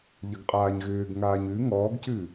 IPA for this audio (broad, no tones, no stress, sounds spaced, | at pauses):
ʎ ə ɡ qʼ aː ɲ ɣ ʏː ɡ ŋ aː ɲ ʉ ŋ ɔː ɡ c ʉ